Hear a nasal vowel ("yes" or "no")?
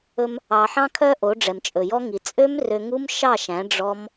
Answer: yes